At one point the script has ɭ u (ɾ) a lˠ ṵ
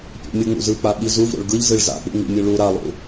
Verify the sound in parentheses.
correct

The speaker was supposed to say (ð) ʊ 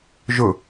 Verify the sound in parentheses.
incorrect: ʒ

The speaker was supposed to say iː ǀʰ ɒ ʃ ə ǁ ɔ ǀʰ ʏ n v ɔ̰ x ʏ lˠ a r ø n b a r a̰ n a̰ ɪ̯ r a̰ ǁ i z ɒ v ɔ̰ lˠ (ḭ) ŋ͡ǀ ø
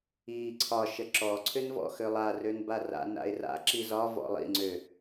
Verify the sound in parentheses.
correct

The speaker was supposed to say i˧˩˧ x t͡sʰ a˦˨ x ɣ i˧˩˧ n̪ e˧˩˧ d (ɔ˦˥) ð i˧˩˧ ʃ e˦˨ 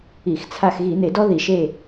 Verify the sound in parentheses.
correct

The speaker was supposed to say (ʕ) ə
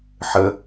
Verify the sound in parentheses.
incorrect: ħ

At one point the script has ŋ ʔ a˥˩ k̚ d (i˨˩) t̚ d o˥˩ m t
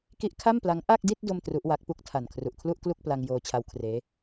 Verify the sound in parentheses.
incorrect: i˥˩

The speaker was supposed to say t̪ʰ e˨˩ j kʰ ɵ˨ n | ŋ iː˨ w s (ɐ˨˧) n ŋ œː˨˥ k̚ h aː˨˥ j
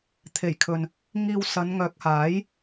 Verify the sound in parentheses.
correct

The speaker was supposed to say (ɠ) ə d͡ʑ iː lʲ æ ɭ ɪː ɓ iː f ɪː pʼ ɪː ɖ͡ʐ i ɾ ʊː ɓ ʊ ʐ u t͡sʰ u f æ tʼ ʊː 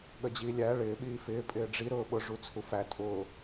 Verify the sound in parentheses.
correct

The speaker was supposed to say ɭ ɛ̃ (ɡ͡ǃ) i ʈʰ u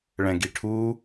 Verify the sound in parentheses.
incorrect: ɡ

